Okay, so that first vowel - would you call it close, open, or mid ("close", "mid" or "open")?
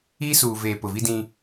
close